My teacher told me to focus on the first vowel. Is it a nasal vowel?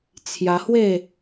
no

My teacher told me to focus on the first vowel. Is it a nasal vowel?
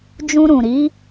yes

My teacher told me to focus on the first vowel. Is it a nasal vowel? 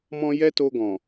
yes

